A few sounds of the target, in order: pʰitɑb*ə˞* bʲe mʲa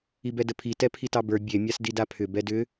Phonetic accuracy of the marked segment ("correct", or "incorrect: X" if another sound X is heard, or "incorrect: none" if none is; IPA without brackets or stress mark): correct